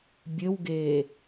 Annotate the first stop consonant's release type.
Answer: plain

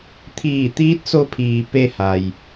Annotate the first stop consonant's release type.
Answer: aspirated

